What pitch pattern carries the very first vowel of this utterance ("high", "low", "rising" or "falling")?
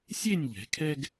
falling